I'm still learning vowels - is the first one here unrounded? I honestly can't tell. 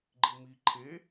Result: yes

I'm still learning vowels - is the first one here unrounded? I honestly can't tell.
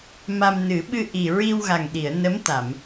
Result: yes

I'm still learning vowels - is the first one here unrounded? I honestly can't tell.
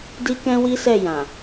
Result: yes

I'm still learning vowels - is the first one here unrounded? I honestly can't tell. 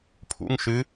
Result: no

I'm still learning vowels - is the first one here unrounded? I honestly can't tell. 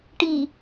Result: yes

